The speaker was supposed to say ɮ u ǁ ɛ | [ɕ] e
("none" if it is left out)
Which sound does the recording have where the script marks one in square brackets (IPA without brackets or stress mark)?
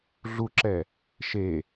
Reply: ʃ